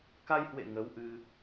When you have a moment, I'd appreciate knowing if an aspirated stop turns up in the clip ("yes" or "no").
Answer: no